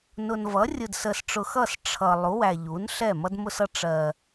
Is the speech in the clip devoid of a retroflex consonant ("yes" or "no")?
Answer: no